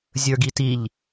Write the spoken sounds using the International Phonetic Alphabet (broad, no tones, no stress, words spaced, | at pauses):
zʲə˞ɡitiʎ